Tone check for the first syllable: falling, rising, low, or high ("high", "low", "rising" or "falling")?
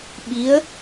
rising